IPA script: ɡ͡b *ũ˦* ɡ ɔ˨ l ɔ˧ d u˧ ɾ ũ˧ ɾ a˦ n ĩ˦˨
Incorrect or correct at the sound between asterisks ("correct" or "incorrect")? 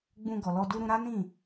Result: incorrect